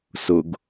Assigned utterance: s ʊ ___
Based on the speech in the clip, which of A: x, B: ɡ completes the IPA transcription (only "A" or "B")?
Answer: B